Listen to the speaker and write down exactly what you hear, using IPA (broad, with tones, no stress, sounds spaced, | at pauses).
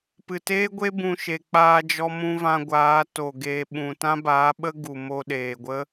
p ɨ˨ t eː˦ ɡʷ e˦ b ũ˧ ʃ e˨ k͡p aː˧ d͡ʒ ɔ˧ m ũ˧ v ã˧ ɡʷ aː˨˦ t o˨ ɡ eː˧ ɓ ũ˨ t ã˦ b aː˨˦ ɓ ə˦ ɡ u˨ m o˧ ɗ eː˨ ɡʷ ə˦